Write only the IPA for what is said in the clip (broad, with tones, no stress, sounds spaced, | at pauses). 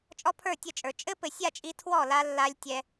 t͡ʃʼ ɔ˦ pʰ ə˞˦˨ tʲ ə˦˨ t͡ʃʼ ə˞˨ t͡ʃʼ ɘ˦ p ɘ˨ sʲ a˦˨ t͡ʃʼ i˧ tʰ w ɔ˦˨ l a˧ lː a˧ lʲ tʲ ɛ˧